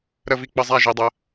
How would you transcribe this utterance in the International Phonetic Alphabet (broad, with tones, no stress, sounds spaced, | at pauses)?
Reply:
ɾ ə˧ v i˧ k͡p ə˧ zˤ æ˧ ʒ i˨ dˤ ə˨˦